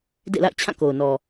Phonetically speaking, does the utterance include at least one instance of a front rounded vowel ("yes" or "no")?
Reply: no